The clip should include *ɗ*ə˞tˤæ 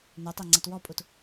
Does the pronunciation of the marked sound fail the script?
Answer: yes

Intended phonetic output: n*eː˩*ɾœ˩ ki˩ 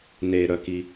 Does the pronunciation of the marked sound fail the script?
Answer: no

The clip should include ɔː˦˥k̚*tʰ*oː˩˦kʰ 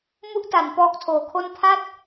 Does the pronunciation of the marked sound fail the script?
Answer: no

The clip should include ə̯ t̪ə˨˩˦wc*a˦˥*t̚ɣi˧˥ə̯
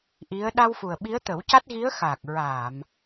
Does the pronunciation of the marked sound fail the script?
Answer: no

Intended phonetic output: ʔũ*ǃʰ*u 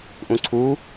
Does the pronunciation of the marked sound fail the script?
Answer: yes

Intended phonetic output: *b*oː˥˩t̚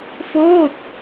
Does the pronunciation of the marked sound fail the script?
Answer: yes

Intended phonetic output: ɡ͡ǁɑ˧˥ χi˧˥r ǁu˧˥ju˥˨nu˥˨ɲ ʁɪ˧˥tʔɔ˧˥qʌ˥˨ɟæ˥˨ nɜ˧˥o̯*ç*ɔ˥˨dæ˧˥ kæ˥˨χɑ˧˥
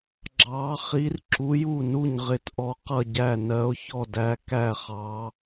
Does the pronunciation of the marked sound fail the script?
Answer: no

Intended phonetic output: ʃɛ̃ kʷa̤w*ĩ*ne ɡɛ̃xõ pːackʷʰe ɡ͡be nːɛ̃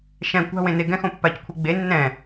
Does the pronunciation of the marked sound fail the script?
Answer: yes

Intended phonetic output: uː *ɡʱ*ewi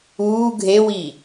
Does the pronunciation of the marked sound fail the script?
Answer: no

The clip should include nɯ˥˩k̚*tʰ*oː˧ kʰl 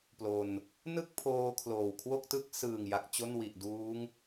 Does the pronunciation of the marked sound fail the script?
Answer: yes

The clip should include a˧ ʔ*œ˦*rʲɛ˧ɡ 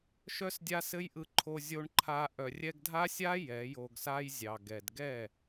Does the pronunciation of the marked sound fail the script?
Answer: yes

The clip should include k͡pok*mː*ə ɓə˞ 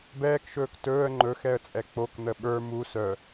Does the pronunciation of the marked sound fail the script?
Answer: yes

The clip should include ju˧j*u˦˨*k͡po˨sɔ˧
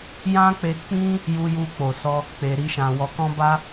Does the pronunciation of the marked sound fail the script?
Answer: yes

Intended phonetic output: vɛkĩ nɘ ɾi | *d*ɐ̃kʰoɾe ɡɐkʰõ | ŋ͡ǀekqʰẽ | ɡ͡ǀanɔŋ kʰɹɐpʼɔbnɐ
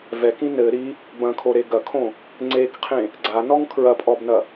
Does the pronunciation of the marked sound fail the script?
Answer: yes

